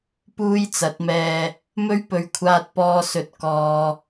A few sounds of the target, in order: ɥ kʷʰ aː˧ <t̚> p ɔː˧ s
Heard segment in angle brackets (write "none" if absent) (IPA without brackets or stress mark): t̚